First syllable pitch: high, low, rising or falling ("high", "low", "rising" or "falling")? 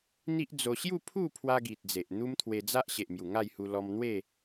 high